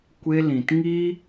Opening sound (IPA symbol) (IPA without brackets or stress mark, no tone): kʷ